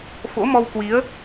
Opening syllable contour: rising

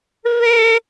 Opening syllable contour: high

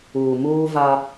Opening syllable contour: low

